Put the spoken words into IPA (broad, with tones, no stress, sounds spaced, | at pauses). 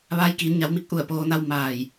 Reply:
ʋ aː˧ j k iː˩˧ n ɲ a˩˧ w m i˧ k̚ ʔ u˧˩ ə̯ p oː˩˧ n a˧ w m aː˧˩ j